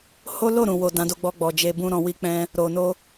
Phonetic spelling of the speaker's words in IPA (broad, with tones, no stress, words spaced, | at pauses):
ho˦lo˦˨ɾũ˨wo˨ dã˨˦do˧ɡ͡bɔ˧ ɡ͡bɔ˨d͡ʒe˧bũ˦ ɾɔ̃˧wi˦k͡pɛ̃˦ | ɾo˨no˧